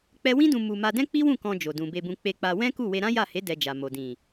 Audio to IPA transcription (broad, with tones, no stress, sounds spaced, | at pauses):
k͡p ɛ˦ w ĩ˦ d ũ˧ m u˧ m a˧ d ɛ̃˦ k͡p i˦ w ũ˦˨ k ɔ̃˧ d͡ʒ o˨ d ũ˨ b e˧ b ũ˧ k͡p e˧ k͡p a˧ w ɛ̃˦ k u˦˨ w e˧ ɾ ã˦ j a˦˨ h e˨˦ d ɛ˧ d͡ʒ a˨ m o˨ d ĩ˨